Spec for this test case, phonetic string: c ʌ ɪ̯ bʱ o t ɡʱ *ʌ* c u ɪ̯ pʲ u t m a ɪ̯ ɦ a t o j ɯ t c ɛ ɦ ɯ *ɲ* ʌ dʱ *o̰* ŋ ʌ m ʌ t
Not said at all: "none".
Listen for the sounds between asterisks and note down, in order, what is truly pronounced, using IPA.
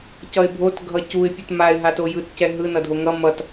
ʌ, n, o

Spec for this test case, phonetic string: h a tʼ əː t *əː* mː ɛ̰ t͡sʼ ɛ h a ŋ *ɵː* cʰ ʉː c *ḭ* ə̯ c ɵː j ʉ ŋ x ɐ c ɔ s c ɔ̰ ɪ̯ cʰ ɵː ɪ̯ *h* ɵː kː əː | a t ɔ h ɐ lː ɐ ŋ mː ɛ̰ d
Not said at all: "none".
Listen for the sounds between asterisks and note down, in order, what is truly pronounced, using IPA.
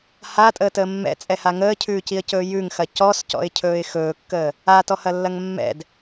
əː, əː, i, x

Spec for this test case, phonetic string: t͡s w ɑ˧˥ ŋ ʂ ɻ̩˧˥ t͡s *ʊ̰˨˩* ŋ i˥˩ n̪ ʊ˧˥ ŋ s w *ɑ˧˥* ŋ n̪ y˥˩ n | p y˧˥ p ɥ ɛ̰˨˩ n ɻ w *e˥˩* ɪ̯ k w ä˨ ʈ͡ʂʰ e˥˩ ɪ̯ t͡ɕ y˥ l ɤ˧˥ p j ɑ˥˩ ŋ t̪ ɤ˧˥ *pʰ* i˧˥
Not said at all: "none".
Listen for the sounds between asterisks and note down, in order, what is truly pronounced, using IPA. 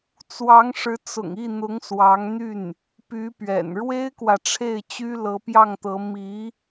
ʊ̰˨˩, ɑ˧˥, e˥, m

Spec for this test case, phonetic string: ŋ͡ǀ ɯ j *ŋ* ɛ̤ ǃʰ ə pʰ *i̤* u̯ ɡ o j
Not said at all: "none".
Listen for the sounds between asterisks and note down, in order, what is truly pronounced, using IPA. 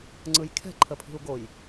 kʰ, i̤

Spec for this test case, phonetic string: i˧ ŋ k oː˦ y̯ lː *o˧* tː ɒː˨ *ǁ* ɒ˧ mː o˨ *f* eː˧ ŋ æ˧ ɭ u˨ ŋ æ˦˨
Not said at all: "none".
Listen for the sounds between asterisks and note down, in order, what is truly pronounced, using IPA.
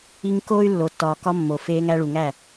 o˨, k, f

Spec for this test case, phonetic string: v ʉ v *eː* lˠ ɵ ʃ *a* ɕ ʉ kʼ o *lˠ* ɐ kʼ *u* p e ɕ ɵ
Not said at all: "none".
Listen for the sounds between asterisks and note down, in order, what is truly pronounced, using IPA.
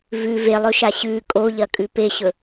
e, a, ʎ, ʉ

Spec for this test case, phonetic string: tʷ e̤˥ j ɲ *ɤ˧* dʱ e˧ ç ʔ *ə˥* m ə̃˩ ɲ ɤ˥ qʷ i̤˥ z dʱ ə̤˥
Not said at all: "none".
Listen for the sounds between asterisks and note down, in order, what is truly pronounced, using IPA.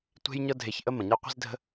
ɤ˥, ə˥

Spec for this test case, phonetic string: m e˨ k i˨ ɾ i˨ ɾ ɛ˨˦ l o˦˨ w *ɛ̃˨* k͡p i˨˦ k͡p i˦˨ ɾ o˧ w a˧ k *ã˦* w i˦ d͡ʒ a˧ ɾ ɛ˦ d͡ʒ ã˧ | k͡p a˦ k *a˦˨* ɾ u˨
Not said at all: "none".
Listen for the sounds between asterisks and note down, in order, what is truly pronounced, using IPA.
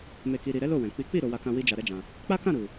ɛ̃˨, ã˧, ã˦˨

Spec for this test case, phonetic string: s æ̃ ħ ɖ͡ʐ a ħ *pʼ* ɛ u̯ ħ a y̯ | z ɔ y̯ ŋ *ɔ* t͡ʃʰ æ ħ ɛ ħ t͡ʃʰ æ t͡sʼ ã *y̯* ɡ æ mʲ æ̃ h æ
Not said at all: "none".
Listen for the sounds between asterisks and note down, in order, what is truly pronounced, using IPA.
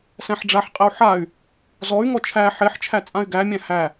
qʼ, ɔ, y̯

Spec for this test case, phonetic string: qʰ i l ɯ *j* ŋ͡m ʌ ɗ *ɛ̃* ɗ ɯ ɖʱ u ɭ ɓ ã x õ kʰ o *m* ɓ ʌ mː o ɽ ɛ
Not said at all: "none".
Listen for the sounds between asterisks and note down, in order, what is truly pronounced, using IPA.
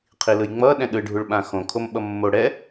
j, ɛ̃, m

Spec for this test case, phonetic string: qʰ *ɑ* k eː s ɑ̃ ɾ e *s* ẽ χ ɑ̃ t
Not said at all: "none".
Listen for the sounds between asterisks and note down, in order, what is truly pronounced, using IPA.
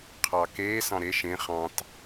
ɑ, ʃ

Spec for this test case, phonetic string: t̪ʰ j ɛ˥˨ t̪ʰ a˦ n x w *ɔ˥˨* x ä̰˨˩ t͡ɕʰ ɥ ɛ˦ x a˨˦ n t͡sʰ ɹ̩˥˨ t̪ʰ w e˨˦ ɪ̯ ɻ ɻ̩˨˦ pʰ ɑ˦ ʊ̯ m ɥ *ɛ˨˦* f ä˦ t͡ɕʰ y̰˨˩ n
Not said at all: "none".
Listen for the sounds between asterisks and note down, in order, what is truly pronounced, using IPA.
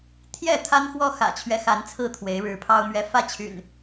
ɔ˦, ɛ˨˦

